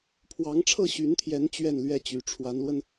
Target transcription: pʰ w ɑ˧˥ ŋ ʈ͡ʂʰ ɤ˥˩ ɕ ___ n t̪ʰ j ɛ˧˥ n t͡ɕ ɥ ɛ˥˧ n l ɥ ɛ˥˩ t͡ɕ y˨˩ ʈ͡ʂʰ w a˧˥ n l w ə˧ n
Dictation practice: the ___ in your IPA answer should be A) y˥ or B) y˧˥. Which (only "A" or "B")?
B